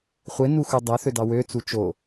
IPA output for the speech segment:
χʷ e n u x u dˤ æ θ ø d ɑ w ø t͡s u t͡ʃ o

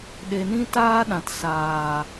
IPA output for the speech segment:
ɗ e˨ n ĩ˧ t aː˧ ɗ ã˨ t s aː˨

